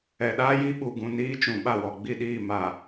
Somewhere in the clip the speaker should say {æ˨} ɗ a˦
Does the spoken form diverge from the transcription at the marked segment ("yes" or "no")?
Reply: yes